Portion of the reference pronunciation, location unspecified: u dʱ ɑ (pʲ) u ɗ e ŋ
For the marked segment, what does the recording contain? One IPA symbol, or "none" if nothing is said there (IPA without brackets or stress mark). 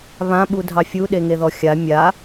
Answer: fʲ